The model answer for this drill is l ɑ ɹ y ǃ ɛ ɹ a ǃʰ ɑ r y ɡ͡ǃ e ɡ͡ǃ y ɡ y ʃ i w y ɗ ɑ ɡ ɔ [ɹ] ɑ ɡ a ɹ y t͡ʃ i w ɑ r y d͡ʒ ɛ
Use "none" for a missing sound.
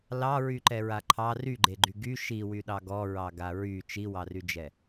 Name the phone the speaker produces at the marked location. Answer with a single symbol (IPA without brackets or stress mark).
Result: ɹ